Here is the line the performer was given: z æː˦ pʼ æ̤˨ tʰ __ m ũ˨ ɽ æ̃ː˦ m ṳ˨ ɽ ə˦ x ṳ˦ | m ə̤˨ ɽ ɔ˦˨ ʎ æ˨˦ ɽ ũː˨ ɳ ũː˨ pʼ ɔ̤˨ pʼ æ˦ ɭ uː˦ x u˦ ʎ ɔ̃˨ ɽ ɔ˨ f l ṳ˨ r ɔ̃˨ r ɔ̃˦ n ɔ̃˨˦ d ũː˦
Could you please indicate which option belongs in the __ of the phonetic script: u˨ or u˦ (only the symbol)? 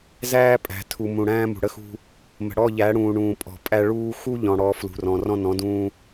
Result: u˨